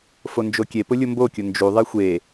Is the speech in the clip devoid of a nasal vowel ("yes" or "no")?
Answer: yes